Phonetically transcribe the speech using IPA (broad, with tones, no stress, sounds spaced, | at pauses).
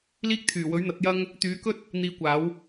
l iː˥ k̚ t̪ʰ yː˨˩ w ɵ˨˥ ɥ n̪ ɐ˨˥ t̚ j ɐ˥ ŋ | t̪ yː˨˥ k ɵ˥ t̚ | n̪ iː˧ kʷ aː˨˥ w